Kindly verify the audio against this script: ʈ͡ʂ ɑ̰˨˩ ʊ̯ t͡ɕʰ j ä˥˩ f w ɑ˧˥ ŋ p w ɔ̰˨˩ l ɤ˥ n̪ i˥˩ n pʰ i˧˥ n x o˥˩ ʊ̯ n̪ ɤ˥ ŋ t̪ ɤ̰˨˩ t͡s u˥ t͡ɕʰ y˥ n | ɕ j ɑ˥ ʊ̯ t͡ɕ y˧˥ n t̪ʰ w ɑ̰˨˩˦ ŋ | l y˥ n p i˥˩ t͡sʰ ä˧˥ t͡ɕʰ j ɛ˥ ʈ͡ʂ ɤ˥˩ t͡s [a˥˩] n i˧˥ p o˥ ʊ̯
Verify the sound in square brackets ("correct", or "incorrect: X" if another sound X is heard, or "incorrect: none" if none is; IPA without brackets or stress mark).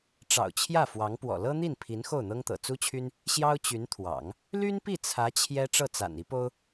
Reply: incorrect: a̰˨˩